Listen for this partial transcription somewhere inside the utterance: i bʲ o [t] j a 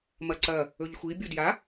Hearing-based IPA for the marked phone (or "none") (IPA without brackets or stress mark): d